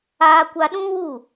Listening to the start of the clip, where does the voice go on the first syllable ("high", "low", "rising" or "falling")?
high